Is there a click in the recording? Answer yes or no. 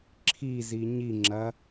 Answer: yes